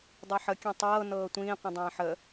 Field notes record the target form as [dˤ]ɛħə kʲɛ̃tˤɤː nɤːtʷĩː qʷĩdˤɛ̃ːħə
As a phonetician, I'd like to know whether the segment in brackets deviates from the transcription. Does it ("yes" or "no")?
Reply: no